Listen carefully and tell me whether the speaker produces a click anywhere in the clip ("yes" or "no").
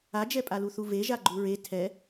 yes